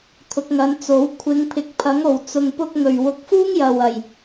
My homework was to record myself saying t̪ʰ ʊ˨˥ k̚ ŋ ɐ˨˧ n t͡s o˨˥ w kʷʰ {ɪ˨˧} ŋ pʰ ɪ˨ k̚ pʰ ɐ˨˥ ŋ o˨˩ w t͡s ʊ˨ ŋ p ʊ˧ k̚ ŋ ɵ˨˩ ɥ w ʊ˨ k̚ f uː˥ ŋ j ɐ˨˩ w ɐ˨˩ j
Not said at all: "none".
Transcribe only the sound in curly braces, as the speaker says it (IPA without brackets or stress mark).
ɪ˨˧